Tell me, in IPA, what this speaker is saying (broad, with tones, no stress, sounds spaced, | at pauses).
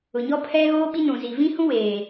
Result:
ʊ˨ ɲ ɔ˦ pʰ ɛ˦ ɣ oː˦ ɓ i˦ n ũ˨ z i˨ v ĩ˦ h ũ˦ w eː˨